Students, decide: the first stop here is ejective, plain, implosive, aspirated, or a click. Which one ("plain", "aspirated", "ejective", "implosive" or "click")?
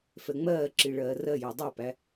click